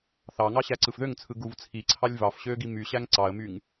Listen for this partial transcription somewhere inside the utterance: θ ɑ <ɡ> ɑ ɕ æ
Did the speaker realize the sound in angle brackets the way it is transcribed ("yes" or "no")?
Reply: no